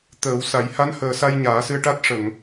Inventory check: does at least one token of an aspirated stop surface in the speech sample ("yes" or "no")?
no